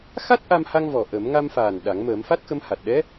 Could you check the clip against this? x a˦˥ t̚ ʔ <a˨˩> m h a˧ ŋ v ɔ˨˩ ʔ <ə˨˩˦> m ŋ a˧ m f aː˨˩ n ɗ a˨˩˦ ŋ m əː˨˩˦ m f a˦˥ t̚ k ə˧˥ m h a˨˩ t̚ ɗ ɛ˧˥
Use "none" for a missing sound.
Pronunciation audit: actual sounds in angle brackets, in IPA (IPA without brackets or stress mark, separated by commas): a˧, ə˨˩˦